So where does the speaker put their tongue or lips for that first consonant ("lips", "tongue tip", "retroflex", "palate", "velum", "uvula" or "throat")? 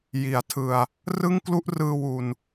palate